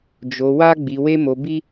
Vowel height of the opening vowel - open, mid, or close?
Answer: mid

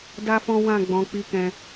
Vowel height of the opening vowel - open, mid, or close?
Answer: open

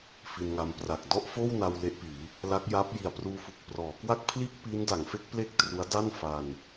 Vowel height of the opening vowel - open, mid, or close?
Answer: close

